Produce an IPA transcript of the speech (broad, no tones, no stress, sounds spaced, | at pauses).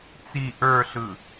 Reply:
t͡s i ʔ ə˞ ɬ ɯ